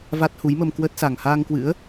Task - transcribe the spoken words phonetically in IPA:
v a˦˥ t̚ h u˨˦ j m ə˧ m k w ə˦˥ t̚ s a˨˩ ŋ h aː˧ ŋ k w ɨ̰˧˥ ə̯

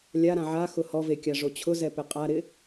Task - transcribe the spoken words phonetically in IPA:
lʲ a ɾ ã ʕ a x ʊ h ɔ v e kʲ a ʐ o t͡ɕʰ ʊ z ɛ p ɪ qʼ a ɾ ɪ

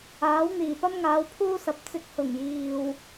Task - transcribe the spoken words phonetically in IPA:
aː˨˥ w n̪ iː˨˩ p ɐ˥ m ŋ aː˨˧ w pʰ uː˥ s ɐ˨˥ p̚ t͡s ɪ˧ k̚ h ʊ˨˩ ŋ j iː˨ w

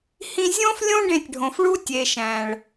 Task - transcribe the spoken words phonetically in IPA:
h ĩ˧ zʲ õ˦ f lʲ õ˦ ɖ ẽ˧ tʲ ɖʱ õ˨ f ɭ u˦ tʲ e˨ ʃ æ̃˨ ɭ

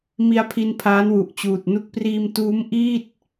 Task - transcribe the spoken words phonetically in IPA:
m i˧ a̯ pʰ i˧ n pʰ aː˦˥ n w u˨˩ ʔ t͡ɕ uː˨˩ t̚ n u˥˩ k̚ p r iː˧ m t uː˦˥ m ʔ iː˥˩ t̚

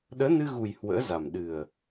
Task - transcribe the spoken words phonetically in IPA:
ɗ əː˨˦ n ɨ˧ ɣ u˨˩ j h w ə̰ː˧˥ z a˨˩ m ɗ ɨ˨˩ ə̯

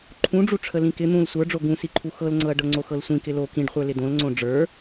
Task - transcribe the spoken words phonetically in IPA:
ǃʰ ũ ɖ͡ʐ u ʈ͡ʂʰ ə l ĩ k ɪ n̪ ũ l sʷ ə˞ ɖ͡ʐ o ɡ ũ s i ǃʰ u x ɤ l ŋ͡ǀ ɤ ɐ̯ ɖ ɤ ŋ͡ǀ o x ɤ l sʷ ĩ k ɪ l o k ĩ ɖ χʷ ə˞ l ɪ d õ l ŋ͡ǀ õ ɖ͡ʐ ə˞

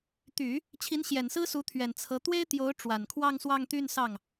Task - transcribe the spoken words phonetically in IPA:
t̪ y˨˩˦ | t͡ɕʰ i˧˥ n ɕ j ɛ˨˩ n s ɹ̩˥ s u˧˥ t̪ʰ ɥ ɛ˨˩ n t͡sʰ ɤ˧˥ t̪ w e˥ ɪ̯ t̪ j o˧˥ ʊ̯ ʈ͡ʂ w a˨˩ n kʰ w ɑ˥˧ ŋ s w ɑ˥˧ ŋ t̪ y˥˧ n s ɑ˥˩ ŋ

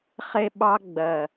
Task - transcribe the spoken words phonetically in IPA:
χ e˧ ɓ ɑ˧ ɡ͡b ɜ˨

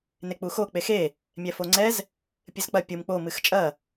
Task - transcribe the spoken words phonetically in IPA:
n e k͡p u x o k͡p e x e | mʲ ɛ f o ŋ͡ǀ ɛ z | pʲ ɨ z k͡p ɐ pʲ u m k͡p o m ɨ x t͡ʃʼ ɐ

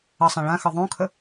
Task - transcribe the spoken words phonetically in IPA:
ə sˤ ã ɭ ã x ɤ ðˤ õ kʰ ə

